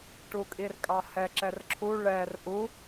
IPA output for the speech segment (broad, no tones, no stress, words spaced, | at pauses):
ʈukʼirkʼɑhɛ ǁɛrǁʰu ɭɛr ʔu